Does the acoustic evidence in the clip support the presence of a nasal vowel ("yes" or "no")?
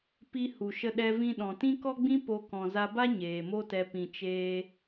yes